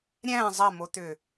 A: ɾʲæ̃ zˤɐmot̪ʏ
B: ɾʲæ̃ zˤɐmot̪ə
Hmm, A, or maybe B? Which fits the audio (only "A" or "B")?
A